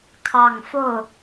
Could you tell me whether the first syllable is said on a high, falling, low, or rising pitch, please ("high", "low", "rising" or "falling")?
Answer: low